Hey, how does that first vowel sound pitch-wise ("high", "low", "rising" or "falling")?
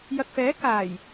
low